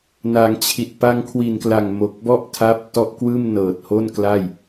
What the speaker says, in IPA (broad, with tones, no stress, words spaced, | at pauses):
na˩˦ŋt͡ɕʰi˨˩t̚ pa˧ŋkʰwi˨˩nkla˨˩ŋ mo˨˩k̚bɔ˥˩ʔtʰaː˦˥p̚ tɔ˥˩ʔ kwɯː˥˩mnɤː˨˩t̚ho˥˩nkla˥˩j